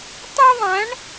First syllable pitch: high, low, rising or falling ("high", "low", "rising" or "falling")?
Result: high